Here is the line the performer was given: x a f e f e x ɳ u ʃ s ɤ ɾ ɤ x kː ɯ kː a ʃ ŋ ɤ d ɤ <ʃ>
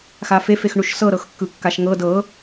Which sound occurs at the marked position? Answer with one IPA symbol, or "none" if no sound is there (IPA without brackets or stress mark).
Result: none